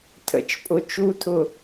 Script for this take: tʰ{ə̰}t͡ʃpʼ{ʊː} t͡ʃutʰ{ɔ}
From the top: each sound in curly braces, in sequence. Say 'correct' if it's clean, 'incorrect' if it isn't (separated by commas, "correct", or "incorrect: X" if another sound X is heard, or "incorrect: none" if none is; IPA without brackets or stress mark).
correct, incorrect: ʊ, incorrect: ʊ